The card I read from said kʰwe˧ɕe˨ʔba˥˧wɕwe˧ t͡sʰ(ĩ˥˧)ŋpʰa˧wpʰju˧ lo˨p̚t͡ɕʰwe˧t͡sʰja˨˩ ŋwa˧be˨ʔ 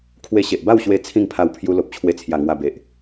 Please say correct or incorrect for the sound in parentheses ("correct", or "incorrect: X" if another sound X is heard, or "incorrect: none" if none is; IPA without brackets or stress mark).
correct